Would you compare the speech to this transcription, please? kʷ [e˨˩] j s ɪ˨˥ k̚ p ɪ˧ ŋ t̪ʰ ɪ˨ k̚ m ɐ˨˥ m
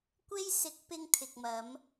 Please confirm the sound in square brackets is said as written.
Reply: no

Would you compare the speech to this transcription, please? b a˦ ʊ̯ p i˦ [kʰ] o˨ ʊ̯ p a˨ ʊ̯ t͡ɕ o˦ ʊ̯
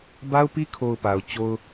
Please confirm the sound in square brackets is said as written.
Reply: yes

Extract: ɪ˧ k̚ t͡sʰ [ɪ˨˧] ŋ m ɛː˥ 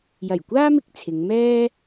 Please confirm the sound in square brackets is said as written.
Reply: yes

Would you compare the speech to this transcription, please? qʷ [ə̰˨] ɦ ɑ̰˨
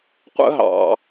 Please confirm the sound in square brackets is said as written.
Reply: no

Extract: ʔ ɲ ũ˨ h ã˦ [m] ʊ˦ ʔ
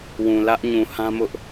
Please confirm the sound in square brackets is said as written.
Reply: yes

